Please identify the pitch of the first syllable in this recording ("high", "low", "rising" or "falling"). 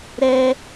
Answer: high